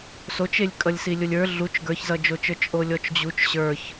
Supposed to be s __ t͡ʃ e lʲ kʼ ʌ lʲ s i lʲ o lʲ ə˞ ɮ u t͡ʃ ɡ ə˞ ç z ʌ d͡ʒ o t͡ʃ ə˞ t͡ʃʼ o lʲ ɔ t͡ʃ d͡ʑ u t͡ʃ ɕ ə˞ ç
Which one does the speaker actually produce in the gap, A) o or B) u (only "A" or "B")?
A